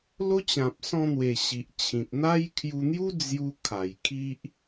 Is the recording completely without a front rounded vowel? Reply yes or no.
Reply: yes